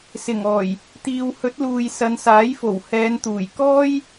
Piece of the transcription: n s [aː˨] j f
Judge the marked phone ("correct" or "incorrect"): incorrect